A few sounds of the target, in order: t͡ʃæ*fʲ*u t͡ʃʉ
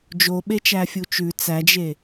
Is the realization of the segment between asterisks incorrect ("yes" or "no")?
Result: no